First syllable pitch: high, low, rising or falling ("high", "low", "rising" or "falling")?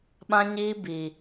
high